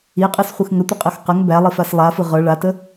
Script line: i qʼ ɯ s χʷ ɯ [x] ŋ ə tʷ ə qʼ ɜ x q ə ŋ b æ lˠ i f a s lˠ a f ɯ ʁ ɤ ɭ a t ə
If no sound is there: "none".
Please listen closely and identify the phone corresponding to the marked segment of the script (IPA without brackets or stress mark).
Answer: x